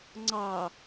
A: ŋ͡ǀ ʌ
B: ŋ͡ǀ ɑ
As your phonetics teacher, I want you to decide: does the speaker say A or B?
B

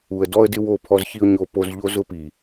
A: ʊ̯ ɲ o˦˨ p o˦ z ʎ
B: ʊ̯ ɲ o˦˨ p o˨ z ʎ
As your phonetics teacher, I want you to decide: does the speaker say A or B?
A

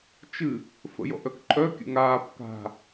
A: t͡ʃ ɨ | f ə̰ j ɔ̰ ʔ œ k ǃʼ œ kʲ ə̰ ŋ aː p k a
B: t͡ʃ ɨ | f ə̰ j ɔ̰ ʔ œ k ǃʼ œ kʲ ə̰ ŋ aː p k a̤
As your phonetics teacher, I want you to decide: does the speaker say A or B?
B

